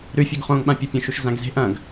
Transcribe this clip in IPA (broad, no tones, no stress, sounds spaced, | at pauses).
ɾ ʉ fʲ o ɡ χ õː ŋ ɓ ã pʲ o pʲ õ ʃ u ʃ z ã ɡ z e̤ ʔ ɐ̃ ɡ